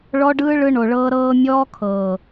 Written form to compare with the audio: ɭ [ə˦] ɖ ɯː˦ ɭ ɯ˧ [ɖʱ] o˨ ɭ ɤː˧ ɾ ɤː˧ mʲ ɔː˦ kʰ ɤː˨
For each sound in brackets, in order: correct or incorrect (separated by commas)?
incorrect, incorrect